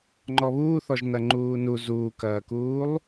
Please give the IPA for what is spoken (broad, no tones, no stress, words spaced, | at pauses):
ŋ͡ǃɔβuːθɔʒ nɐŋ͡ǃuːnu zuːkɐːkuːlˠ